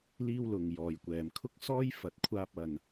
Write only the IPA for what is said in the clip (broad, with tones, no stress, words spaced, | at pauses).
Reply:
liː˥wlʊ˨ŋ jɔː˨jkʷɛː˨mkʰʊ˥k̚sɔː˥j fɐ˨t̚kʷʰaː˧p̚ɐ˨n